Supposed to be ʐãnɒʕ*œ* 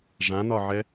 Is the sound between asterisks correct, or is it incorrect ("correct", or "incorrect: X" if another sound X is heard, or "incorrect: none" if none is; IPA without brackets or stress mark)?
incorrect: ɛ